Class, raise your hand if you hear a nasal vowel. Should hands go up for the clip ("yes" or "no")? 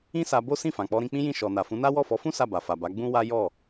yes